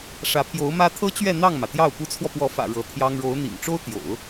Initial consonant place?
retroflex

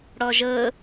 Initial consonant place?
retroflex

